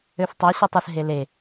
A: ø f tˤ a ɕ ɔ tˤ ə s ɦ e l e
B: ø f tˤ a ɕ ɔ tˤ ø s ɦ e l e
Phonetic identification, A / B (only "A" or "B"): A